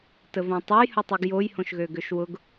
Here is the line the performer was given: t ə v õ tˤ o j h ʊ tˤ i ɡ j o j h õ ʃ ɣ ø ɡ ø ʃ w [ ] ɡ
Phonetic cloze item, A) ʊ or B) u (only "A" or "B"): A